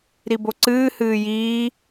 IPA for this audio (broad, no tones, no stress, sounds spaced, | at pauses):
ɾ i b o ǀ ɨː h ɨː j iː